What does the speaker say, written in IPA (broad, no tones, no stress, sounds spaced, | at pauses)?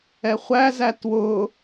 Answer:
ɛ χʷ æ z æ t w ʊ